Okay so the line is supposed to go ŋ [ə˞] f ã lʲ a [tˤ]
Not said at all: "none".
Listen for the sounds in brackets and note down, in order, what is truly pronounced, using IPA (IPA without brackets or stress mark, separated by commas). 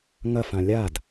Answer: ɐ, d